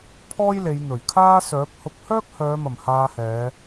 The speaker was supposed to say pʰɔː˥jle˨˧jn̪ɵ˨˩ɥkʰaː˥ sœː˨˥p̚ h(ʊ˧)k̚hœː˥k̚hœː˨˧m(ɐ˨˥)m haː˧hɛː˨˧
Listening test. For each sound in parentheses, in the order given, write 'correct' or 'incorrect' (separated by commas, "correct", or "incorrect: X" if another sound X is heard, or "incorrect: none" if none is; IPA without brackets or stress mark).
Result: incorrect: ʊ˨˥, incorrect: ɐ˨˩